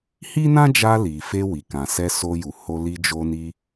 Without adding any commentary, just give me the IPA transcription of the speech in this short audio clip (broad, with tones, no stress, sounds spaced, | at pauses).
h i˦ n ã˦ d͡ʒ a˧ l i˨ f e˧ w i˨ k ã˨ s ɛ˧ s o˧ j u˨ h o˧ l i˧ d͡ʒ o˧ n i˧